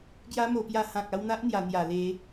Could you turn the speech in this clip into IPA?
ɡ j a˦ m o˧ p j a˧ h ã˨ k̚ a˧ w n̪ a˦ ʔ n̪ j a˨˩ n̪ j a˨˩ l e˨˦

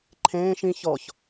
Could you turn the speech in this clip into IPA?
ǃʰ ẽː ʃ ĩ ç ɔ ç

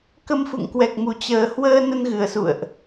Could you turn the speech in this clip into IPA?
k ə˧ m f ṵ˧˨ ŋ k w ɛ˨˩ k̚ m u˨˩ t͡ɕ əː˨˩ h w əː˧ n ə˧ n ɣ ɨ˨˩ ə̯ s ṵ˧˨ ə̯ ʔ

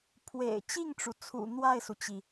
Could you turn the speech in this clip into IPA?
pʰ w ḛ˨˩ ɪ̯ t͡ɕ i˥˩ ŋ ʈ͡ʂ u˩ t͡sʰ ṵ˨˩ n̪ w a˥˩ ɪ̯ s u˩ t͡ɕ i˩

